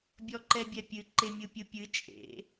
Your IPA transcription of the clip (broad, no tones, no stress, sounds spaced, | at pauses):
bʲ ɔ ǃ ɛ bʲ ɛ pʲ ɨ ǃ e mʲ ɯ pʲ ɯ pʲ ɨ t͡ʃʼ ḛ